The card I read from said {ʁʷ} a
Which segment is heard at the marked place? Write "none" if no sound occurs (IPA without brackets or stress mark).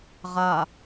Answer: ʁ